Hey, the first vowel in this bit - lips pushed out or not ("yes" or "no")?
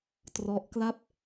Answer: yes